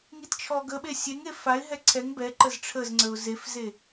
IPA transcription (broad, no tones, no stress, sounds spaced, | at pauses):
ŋ i t t͡ʃʰ ɔ ɡ ə ɓ e sʲ e ŋ e f a ɪ̯ ɦ ɛ ǀʰ ɛ ŋ b ɛ ǃ ə z ʈ͡ʂʰ ə z ŋ͡ǀ ə ʊ̯ z e f z e